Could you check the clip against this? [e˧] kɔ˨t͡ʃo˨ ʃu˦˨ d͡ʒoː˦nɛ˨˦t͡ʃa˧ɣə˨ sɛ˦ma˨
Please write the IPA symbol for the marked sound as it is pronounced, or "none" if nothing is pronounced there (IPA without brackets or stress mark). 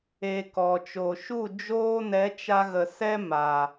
e˧